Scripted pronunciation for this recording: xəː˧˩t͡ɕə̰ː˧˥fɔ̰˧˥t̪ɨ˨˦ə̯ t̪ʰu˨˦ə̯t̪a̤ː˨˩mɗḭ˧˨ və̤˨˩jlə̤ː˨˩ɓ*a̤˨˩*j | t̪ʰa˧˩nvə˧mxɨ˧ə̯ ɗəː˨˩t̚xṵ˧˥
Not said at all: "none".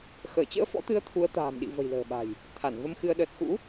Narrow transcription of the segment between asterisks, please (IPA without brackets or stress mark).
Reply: a̤˨˩